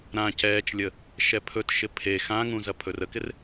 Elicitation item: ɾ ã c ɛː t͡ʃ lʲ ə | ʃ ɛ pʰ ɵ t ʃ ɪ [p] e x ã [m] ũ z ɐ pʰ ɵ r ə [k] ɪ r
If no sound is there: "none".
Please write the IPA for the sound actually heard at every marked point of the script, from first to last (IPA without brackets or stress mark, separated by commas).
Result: pʰ, ŋ, k